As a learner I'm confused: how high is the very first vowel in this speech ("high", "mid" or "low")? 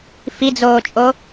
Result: high